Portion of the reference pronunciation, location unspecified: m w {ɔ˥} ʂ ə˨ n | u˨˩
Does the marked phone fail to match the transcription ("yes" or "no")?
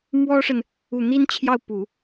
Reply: no